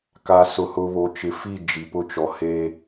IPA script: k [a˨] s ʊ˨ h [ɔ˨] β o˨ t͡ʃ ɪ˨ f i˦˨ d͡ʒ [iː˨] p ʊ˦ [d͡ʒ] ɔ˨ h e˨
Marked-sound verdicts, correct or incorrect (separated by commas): correct, incorrect, incorrect, incorrect